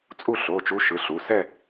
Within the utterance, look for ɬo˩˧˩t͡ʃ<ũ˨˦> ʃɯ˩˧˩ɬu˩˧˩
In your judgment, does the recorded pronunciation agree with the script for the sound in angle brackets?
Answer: no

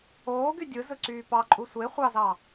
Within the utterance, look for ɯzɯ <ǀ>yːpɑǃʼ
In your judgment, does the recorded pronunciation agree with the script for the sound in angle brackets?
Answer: yes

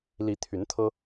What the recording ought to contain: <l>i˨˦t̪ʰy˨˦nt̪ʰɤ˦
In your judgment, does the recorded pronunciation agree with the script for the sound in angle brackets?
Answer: yes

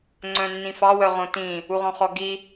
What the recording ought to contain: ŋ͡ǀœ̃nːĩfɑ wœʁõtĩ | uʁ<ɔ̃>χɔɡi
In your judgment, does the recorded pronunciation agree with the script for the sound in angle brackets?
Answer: yes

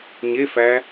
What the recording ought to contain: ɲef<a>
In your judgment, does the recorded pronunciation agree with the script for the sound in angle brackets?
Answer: no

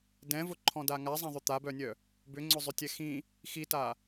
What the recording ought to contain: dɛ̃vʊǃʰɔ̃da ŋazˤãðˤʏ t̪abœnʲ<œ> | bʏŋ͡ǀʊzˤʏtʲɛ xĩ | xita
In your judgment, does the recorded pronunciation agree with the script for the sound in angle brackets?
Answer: yes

